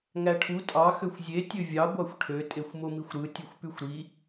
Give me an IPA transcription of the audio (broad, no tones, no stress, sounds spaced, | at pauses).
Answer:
ŋ æ ʈʰ u tʼ ɑ x ø xʷ zʲ e tʲ ø vʲ ɑ ɡʷ ɑ xʷ ʈʰ ø tʼ e xʷ m o m i xʷ ɾ ɯ tʲ ɯ xʷ p y xʷ ɾ i